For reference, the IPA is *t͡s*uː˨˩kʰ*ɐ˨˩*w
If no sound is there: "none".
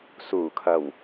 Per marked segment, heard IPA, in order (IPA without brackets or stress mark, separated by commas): s, ɐ˨˩